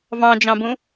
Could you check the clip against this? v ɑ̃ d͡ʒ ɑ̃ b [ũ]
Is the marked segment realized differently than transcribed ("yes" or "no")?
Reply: no